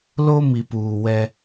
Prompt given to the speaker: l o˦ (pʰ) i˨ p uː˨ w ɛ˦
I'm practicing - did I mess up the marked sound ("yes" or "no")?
yes